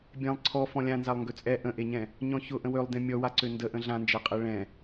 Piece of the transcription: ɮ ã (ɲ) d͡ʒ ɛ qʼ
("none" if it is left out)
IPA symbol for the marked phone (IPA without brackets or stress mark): n